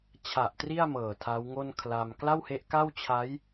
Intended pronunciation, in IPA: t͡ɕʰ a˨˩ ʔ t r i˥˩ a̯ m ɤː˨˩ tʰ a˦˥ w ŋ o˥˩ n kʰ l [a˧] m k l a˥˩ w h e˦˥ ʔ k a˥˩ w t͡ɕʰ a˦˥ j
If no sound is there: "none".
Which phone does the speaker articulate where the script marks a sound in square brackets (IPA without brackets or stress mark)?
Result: a˧